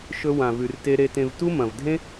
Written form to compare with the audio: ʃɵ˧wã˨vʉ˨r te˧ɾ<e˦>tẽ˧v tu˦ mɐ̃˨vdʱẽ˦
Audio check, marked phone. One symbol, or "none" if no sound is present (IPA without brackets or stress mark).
e˧